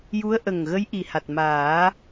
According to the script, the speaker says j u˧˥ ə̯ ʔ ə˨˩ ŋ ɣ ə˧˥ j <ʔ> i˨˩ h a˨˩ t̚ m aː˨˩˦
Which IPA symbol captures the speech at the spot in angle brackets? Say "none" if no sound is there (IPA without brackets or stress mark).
ʔ